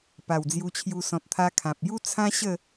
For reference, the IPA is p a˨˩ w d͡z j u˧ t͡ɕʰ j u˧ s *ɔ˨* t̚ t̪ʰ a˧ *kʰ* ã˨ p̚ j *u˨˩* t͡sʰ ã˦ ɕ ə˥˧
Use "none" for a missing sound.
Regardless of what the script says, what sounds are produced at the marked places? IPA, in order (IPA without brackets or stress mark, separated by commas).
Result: ɔ̃˨, kʰ, u˦